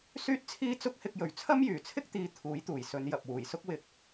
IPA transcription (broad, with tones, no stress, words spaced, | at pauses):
syː˥t̚t͡sʰiː˥ t͡sʊ˥k̚hɪ˧k̚jɵ˨ɥ t͡sʰɐ˥mjyː˨˩t͡sʰɪ˥k̚t̪iː˨˧ t̪ʰuː˨˥jt̪uː˨˩jsɵ˨˧n jɐ˨p̚wuː˨˩jsʊ˥k̚ wɪ˧k̚